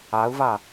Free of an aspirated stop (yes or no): yes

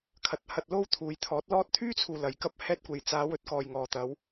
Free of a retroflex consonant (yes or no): yes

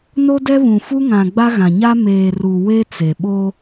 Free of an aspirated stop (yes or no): yes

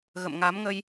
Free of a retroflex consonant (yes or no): yes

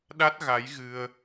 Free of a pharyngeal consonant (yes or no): yes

